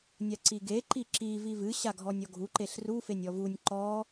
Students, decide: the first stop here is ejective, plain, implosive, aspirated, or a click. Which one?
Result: click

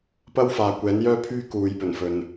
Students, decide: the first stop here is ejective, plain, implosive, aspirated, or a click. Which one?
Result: plain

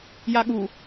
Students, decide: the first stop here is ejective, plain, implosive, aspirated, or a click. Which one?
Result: implosive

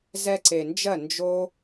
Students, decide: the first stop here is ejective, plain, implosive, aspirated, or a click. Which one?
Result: click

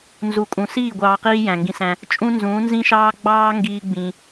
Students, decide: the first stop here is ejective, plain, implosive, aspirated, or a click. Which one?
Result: ejective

